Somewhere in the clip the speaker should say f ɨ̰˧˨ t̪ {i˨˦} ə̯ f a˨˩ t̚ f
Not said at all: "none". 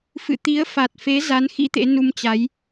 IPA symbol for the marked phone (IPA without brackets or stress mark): i˨˦